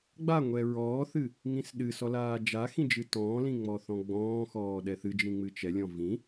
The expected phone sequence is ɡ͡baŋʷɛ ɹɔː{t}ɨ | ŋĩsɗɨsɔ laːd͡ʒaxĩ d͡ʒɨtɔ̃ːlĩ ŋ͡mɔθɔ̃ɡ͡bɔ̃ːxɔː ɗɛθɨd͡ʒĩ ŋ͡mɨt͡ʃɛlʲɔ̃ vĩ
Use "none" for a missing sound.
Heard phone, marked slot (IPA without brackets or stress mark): θ